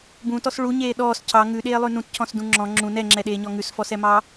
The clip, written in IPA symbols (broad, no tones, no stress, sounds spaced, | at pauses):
b ũ t ɔ s ɭ u ɲ eː ɗ ɔː s cʰ ɑ ŋ ʉ ɗ eː lˠ ʉ n ũ t cʰ ɔ̃ s d ũ ŋ͡ǁ ɔ̃ ŋ͡ǁ ũ n ɛ ŋ͡ǁ ɛ ɗ eː ɲ ɔ ŋ ʉ s f ɔ s ɛ m ɑ